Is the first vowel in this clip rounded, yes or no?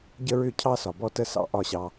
no